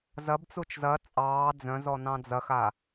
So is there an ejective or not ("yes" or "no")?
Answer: yes